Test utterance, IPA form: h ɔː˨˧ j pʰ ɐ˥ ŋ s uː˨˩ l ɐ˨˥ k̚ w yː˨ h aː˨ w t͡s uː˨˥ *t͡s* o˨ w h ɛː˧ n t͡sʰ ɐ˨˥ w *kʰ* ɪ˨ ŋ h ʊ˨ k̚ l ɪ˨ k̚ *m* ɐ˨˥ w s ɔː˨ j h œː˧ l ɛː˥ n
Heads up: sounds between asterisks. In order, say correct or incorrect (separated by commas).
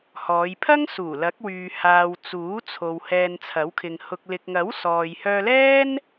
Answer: incorrect, correct, incorrect